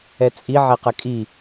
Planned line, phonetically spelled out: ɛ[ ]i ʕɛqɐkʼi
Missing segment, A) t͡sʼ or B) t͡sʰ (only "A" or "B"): A